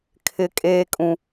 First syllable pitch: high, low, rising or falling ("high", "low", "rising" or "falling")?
high